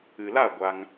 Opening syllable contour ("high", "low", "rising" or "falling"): low